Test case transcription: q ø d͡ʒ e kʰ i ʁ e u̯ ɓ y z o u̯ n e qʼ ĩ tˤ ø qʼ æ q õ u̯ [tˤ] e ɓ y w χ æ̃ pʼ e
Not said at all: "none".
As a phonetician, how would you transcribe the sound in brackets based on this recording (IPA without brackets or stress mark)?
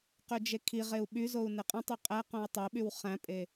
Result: tˤ